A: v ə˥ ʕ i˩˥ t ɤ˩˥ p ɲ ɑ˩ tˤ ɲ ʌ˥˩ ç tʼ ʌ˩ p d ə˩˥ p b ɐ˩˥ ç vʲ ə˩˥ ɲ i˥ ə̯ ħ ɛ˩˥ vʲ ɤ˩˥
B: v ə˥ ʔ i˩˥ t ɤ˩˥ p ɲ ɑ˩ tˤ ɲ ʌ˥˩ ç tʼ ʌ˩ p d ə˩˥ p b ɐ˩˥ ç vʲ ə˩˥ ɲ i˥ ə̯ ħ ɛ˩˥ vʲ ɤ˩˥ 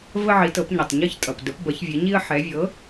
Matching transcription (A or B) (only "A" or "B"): A